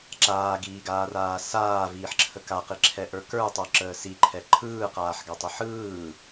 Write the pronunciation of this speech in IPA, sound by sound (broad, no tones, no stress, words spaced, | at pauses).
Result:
ǁaːɡiːɡaːraː saːviːħǁʰə kaqiǁʰɛʔə˞ kə˞tˤə˞ǁəː siǃʰɛ ǃʰɯːqaːħɡatˤə ħɯː